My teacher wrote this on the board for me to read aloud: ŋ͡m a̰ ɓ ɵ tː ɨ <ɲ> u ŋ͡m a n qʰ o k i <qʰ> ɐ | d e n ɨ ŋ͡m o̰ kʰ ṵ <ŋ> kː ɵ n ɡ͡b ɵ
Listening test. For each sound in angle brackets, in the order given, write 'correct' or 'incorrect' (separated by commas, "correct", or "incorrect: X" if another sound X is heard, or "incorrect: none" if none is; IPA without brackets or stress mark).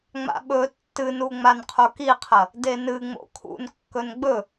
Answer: incorrect: n, correct, incorrect: n